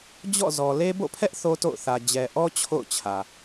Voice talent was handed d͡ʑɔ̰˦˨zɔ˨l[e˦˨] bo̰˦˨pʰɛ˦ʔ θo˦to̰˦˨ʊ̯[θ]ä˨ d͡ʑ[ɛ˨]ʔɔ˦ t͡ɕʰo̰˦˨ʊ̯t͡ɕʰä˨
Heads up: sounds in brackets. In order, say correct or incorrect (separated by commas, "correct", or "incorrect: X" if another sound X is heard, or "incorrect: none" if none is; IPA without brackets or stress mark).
incorrect: e˦, correct, correct